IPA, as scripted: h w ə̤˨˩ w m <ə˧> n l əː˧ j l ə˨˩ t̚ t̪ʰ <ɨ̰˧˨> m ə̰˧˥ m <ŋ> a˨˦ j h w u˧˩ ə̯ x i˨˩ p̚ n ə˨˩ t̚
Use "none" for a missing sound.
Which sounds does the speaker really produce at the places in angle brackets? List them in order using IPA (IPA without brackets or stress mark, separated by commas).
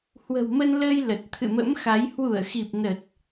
ə˧, ɨ̰˧˨, x